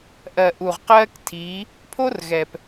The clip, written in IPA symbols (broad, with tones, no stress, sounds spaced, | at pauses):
ʔ ɜ˨ ʔ u˨ ʁ q ɜː˦ k tʰ iː˨˦ | pʰ o˦ r ɣ ɛː˨ p